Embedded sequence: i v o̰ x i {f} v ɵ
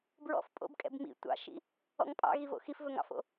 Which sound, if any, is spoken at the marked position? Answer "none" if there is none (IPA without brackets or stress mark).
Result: f